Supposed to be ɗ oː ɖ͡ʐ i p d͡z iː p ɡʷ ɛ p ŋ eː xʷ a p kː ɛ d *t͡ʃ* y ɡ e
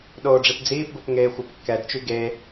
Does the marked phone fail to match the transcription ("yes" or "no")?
no